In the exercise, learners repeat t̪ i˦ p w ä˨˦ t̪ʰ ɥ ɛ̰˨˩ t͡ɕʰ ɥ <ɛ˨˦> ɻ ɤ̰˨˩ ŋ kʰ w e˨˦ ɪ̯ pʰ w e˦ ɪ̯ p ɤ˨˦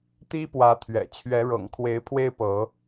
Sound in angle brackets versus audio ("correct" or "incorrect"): correct